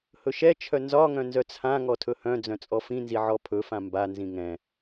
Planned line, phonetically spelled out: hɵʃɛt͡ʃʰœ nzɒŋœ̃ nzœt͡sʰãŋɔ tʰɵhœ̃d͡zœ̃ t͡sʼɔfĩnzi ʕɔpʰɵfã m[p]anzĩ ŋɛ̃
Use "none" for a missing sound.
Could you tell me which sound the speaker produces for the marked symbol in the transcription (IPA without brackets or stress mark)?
b